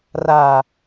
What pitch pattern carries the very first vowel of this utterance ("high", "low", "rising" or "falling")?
low